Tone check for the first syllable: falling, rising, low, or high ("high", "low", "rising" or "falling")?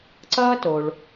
high